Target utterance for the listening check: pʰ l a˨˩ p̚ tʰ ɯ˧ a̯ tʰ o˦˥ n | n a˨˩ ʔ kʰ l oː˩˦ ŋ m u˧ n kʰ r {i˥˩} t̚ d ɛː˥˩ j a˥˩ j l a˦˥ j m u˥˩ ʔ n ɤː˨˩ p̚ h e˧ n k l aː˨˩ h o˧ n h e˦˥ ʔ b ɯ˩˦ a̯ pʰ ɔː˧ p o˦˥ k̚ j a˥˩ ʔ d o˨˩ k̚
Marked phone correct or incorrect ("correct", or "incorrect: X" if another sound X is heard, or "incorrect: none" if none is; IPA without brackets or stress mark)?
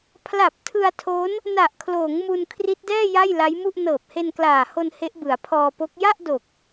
incorrect: i˦˥